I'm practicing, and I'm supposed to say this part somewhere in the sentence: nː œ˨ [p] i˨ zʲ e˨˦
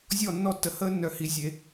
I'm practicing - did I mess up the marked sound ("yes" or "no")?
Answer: yes